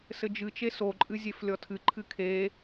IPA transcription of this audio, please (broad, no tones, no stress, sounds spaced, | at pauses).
s ɘ d͡ʒ ɨ t͡ʃ e s o ǃʼ ɨ zʲ e f lʲ ɔ tʰ ɨ ǃʰ ɨ kʰ e